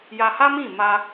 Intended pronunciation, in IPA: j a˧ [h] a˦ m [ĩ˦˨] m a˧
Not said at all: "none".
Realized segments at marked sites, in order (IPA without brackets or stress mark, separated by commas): h, ĩ˦˨